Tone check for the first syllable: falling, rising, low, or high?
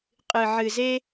low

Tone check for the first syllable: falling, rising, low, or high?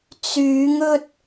rising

